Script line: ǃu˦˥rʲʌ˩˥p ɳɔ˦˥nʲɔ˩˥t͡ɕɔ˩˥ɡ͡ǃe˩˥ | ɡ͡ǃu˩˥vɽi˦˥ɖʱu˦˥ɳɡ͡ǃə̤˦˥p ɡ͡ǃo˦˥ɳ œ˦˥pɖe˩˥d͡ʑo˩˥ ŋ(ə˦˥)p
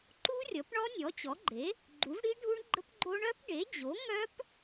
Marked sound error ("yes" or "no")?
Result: yes